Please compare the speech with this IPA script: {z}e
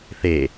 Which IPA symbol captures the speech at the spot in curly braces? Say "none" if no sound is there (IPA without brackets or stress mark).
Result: θ